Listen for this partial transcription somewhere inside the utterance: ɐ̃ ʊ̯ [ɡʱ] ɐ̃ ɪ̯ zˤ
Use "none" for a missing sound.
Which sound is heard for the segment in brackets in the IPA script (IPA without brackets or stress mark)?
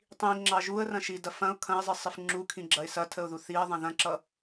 kʰ